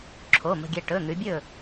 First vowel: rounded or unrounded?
rounded